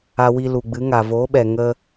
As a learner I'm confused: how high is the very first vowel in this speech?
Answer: low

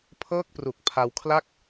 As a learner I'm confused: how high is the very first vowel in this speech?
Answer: mid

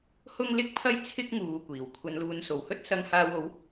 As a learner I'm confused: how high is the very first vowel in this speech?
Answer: high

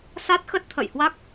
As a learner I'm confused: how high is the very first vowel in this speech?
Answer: low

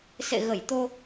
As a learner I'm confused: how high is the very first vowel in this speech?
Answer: mid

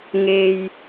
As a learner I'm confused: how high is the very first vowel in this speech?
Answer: mid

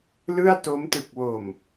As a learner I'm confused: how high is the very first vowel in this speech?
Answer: high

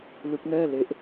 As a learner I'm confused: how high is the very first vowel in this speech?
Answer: high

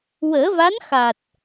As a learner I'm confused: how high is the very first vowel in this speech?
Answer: mid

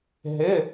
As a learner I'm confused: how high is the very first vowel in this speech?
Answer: high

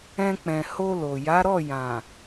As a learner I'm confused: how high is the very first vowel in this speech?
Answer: mid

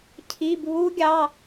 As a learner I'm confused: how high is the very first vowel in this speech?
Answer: high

